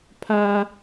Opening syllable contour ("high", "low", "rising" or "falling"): high